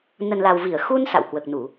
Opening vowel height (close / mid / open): mid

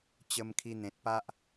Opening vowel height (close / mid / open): mid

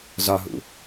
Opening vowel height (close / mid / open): open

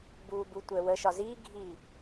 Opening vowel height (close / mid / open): close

